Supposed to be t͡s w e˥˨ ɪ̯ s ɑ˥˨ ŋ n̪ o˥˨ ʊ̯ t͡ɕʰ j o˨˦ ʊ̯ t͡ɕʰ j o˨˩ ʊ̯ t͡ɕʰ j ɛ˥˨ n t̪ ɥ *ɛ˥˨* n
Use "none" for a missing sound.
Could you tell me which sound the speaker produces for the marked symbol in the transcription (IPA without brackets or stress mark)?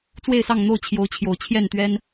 ɛ˦